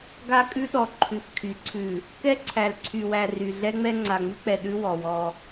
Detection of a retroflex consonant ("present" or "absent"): absent